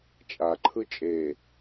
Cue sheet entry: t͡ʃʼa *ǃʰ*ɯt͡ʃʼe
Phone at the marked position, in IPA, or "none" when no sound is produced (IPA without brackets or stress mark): ǃʰ